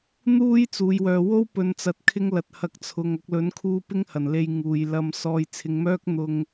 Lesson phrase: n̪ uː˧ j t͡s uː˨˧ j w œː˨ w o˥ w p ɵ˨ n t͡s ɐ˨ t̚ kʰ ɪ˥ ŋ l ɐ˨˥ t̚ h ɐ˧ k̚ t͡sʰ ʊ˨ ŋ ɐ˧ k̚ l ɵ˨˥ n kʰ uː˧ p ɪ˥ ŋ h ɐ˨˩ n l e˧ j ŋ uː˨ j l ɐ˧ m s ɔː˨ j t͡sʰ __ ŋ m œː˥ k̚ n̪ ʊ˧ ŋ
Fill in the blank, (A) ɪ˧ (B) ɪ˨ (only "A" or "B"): B